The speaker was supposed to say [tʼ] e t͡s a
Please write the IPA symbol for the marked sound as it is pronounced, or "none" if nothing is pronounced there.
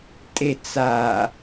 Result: tʼ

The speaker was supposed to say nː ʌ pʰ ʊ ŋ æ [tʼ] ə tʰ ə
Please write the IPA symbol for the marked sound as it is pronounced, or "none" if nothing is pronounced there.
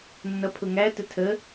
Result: t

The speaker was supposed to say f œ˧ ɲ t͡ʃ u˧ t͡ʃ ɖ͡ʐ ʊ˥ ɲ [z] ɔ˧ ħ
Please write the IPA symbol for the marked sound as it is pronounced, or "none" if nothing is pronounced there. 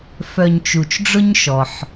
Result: ʃ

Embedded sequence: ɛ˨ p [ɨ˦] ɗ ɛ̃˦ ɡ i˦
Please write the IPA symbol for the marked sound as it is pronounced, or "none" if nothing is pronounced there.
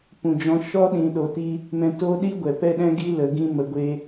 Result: ɛ˦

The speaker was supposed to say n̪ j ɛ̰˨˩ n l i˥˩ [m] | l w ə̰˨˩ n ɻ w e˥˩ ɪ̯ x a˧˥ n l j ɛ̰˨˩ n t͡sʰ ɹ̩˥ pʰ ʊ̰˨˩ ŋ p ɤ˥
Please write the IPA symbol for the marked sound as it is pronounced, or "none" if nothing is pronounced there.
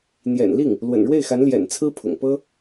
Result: ŋ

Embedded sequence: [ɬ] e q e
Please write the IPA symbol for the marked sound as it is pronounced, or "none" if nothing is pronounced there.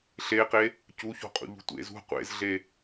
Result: ɬ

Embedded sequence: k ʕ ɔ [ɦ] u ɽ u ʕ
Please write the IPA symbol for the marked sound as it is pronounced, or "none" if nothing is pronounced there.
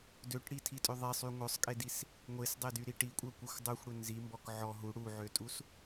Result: ɦ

